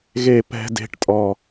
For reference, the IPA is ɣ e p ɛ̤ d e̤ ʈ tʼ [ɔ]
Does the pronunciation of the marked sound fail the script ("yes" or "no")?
no